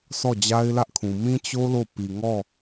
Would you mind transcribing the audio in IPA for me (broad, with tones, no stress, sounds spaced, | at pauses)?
s ɔ˦˨ d͡ʑ a˦ ɪ̯ l ä˦ ʔ kʰ ũ˨ m ĩ˦ t͡ɕ o˦ l o˦˨ p i˨ ŋ ɔ˦˨